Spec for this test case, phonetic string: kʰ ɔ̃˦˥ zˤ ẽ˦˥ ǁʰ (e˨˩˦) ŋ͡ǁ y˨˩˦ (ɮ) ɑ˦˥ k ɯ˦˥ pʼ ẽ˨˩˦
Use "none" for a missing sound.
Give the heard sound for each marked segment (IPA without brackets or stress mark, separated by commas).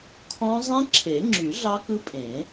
e˨˩˦, ɮ